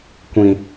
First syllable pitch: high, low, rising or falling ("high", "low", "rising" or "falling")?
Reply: low